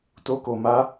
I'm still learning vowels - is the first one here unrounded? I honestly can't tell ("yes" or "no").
no